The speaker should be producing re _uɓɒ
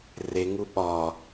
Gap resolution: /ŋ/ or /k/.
ŋ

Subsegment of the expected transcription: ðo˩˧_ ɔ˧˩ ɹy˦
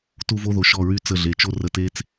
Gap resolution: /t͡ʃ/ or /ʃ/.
ʃ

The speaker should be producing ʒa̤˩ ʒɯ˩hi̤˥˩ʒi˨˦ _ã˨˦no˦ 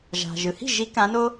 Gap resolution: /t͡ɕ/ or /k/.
k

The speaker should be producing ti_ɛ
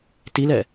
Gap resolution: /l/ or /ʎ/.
l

